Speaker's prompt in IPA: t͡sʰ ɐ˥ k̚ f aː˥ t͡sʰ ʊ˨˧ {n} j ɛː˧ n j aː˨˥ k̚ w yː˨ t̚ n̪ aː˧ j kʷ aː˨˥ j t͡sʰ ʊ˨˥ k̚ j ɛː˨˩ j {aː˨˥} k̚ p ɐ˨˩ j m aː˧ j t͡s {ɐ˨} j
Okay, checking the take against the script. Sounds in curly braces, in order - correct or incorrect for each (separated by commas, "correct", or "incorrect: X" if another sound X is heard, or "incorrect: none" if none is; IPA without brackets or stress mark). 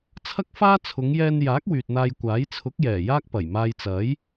incorrect: ŋ, incorrect: aː˥, incorrect: ɐ˨˥